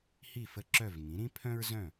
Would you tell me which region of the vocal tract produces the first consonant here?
throat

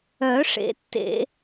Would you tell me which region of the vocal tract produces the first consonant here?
retroflex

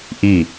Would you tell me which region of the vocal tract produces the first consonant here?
throat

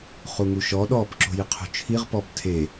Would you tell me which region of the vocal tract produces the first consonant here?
uvula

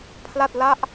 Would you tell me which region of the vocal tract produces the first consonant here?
lips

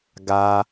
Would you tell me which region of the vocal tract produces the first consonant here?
velum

